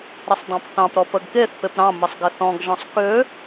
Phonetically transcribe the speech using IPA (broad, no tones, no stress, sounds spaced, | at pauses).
ɾ ə sˤ dˤ ɑ̃ p θ ɑ̃ p ɾ ɔ p ə ɡ k e θ p e p ɾ ɑ̃ m ə sˤ ɡ ɪ θ ɔ̃ ɡ ʒ ɔ̃ sˤ k ø